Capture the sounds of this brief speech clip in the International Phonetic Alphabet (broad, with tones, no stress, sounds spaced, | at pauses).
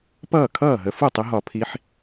p ʌː˥˩ kʰ ʌː˥˩ ɦ ə˨˦ f u˥˩ tˤ ɪ˨˦ ɦ ɒ˧˩˧ pʰ i˨˦ ħ